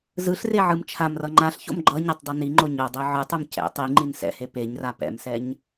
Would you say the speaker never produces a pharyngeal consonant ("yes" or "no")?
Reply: no